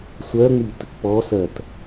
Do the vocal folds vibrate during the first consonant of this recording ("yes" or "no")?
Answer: no